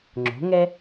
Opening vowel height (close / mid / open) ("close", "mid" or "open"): mid